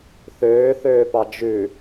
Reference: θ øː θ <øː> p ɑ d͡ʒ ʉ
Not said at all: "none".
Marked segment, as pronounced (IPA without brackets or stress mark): øː